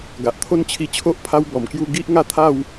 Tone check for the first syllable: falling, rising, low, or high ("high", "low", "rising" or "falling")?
low